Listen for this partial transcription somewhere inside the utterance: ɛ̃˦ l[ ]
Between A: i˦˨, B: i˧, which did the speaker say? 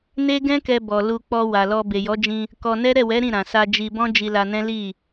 A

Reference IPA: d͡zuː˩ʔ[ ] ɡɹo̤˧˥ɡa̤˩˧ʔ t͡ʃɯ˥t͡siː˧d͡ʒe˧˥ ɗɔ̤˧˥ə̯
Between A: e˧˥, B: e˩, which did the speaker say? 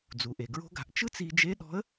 B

